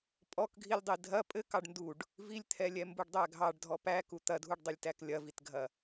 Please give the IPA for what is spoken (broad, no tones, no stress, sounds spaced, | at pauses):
pʼ ɔ k ɡʱ i lʲ dˤ i dʱ ɐ pʼ ɘ k ɑ ɖ n d u ɖ | v i lʲ t̪ʰ ɛ lʲ ɛ m b u ɖ dˤ æ ɡʱ ɑ ɖ dʱ ɔ p æ k u t̪ ɐ dʱ u ɖ dˤ ɘ lʲ t æ k lʲ ɐ v i t ɡʱ ɐ